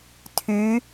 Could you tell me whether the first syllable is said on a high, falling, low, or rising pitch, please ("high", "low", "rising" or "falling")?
rising